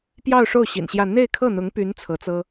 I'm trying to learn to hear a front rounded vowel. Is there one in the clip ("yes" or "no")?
yes